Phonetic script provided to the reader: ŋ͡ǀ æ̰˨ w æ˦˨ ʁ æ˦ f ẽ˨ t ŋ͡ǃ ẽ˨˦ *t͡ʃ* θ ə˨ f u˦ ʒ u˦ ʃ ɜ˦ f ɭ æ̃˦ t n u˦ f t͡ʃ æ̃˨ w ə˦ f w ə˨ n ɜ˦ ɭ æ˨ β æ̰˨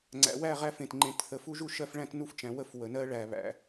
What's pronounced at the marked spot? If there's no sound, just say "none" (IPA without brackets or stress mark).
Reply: t